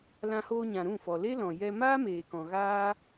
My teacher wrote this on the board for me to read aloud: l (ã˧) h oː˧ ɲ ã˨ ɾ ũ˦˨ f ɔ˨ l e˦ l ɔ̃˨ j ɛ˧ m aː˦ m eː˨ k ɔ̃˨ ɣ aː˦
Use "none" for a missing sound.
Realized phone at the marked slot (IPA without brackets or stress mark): ã˧